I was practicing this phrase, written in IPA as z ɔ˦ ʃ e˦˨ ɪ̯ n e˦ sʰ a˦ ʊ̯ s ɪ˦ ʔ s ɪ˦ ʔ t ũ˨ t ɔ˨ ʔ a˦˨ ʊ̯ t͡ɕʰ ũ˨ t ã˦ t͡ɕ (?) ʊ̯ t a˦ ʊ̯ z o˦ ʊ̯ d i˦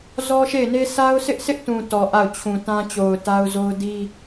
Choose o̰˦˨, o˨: o˨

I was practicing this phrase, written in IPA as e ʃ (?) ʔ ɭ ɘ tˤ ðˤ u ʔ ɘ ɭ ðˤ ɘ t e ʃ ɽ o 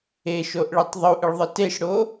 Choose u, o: o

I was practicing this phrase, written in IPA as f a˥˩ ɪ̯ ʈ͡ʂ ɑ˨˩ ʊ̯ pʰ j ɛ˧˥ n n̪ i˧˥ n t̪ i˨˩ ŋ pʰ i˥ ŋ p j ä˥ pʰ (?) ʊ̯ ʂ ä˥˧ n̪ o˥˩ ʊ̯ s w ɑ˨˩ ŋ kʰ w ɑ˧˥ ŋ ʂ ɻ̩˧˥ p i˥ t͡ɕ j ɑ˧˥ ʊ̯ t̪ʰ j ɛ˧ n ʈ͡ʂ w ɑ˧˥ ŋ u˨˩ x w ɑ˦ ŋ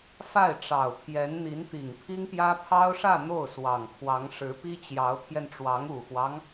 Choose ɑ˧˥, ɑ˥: ɑ˥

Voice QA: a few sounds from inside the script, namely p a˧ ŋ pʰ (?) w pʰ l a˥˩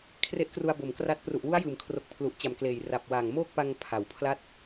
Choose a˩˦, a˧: a˩˦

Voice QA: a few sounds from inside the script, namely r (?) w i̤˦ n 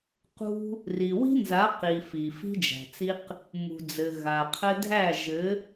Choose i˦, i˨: i˨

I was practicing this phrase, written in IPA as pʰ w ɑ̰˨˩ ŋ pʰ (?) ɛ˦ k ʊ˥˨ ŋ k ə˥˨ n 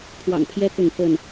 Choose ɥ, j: j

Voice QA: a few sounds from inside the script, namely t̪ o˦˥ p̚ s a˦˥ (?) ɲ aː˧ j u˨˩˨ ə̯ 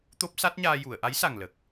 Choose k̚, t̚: t̚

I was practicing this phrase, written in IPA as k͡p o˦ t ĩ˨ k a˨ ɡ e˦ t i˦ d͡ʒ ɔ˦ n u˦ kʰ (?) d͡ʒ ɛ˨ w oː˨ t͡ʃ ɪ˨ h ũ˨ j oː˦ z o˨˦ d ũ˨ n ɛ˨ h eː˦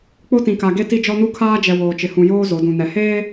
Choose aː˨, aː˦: aː˦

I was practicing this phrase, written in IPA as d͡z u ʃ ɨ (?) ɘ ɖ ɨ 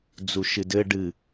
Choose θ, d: d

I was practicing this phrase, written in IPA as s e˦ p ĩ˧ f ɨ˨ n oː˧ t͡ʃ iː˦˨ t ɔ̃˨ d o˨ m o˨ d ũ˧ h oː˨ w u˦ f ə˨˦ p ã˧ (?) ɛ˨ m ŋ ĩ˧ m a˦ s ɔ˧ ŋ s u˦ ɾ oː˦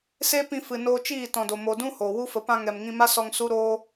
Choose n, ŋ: ŋ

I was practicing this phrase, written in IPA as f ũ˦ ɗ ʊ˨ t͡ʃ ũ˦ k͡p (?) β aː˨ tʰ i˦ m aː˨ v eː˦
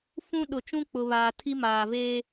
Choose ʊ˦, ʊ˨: ʊ˨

